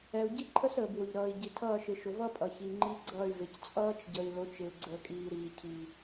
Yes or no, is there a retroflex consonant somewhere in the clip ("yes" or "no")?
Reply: no